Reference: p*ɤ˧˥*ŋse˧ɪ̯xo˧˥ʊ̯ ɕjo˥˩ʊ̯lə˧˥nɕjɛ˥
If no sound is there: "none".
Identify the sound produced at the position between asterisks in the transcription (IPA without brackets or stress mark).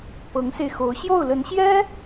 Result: ɤ˧˥